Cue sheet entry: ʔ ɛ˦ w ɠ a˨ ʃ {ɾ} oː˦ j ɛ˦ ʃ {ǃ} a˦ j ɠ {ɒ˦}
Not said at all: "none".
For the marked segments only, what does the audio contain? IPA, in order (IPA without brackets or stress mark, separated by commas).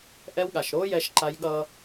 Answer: ɾ, ǃ, ʌ˦